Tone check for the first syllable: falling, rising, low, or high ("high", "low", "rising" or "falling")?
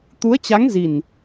rising